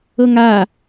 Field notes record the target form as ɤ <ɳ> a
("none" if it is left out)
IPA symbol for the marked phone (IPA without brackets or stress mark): ŋ